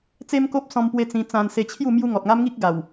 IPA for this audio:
t͡s e˦ m k o˦ p̚ s ɔ̃˧ m p w e˧ t͡s ĩ˧ t͡s ã˧ n s e˧ t͡ɕʰ j u˥˧ m j u˦ ŋ ɔ˨ t̚ ŋ a˦ m ŋ i˦ k̚ ɡ a˨˩ w

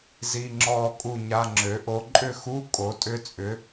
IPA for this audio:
z i˧˥˧ ŋ͡ǁ ɔː˦˨ kʼ u˦˨ ɲ a˧˥˧ ŋ͡ǁ ø˩˥ ʔ o˦˥ ǃʼ ʏ˦˨ x u˧˥˧ kʼ o˩˥ tʼ ʏ˦˥ t͡sʼ ʏ˩˥

